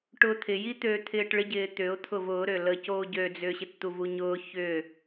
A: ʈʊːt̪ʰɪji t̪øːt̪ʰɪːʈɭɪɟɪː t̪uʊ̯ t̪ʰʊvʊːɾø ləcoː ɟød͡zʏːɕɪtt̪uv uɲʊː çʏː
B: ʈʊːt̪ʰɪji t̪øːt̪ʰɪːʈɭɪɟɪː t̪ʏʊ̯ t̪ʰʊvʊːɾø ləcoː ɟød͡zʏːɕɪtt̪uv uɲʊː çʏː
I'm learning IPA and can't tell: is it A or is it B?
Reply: B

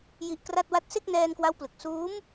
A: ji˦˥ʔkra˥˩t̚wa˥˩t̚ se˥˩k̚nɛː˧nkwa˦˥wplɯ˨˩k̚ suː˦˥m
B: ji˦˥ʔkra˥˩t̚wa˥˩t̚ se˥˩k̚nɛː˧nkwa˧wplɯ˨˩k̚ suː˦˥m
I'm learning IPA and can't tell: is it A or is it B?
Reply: A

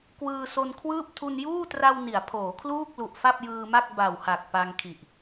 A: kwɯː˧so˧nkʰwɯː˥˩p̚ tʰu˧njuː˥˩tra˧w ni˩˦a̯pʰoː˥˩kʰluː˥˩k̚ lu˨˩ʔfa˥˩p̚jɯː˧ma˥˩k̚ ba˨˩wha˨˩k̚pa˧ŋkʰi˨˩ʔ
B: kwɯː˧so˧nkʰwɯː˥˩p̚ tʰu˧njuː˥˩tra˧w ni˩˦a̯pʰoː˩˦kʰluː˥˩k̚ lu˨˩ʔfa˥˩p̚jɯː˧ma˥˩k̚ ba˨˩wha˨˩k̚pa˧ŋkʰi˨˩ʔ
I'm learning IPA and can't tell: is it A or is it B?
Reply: B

